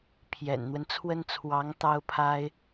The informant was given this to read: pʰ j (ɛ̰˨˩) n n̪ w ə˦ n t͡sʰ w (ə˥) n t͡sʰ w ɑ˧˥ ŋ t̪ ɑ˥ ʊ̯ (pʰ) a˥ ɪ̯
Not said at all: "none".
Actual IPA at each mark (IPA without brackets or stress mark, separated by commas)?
ɛ̰˨˩, ə˥, pʰ